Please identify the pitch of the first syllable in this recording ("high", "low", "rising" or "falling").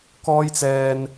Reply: high